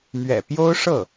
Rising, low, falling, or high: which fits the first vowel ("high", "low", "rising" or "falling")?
low